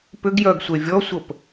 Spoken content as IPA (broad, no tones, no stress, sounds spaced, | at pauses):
p ʏ ɡ j œ ɡ sʷ e vʲ ɔ sʷ ə p